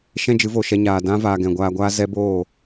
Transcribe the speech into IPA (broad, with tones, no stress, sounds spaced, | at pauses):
ʃ ɛ̃˦ d͡ʒ ɨ˨˦ v o˨ ʃ ɛ˧ ɲ aː˨ d ã˦ v aː˨ ɡ ɛ̃˨ ɡʷ aː˧ ɡʷ aː˦ z ɛ˦ b oː˦˨